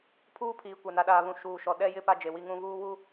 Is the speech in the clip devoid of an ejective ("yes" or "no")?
yes